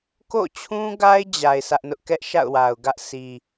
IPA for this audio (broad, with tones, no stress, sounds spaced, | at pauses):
k o̰˦˨ t͡ɕʰ ũ˦ ɡ a˦ ɪ̯ d͡ʑ a˨ ɪ̯ s ä˦ ʔ n ʊ˦ ʔ k ɛ˦ ʔ ʃ a̰˦˨ ʊ̯ w a˨ ʊ̯ ɡ ä˦ ʔ s i˨